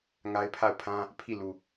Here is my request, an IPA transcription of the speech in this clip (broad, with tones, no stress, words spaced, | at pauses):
ŋa˦ɪ̯pʰa˦˨ʊ̯pʰã˦ | pʰi˦˨lu˨